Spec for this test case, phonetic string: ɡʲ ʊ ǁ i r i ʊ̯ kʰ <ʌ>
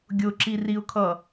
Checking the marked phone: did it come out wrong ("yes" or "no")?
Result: no